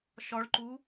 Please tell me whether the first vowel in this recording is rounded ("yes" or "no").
yes